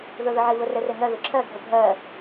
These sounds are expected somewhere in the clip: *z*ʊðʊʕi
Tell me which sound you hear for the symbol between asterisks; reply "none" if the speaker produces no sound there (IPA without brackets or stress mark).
ð